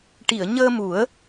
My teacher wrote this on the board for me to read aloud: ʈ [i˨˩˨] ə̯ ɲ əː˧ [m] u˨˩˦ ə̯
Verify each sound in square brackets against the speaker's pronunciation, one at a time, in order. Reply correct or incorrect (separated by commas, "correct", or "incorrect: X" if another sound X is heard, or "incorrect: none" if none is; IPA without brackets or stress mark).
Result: correct, correct